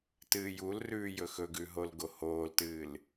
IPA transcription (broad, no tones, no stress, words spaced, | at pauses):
tɨːjulrʉːjɵ xɵɡʉ ɦolɡohoːltɨːl